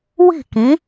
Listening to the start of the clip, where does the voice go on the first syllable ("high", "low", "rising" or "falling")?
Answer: falling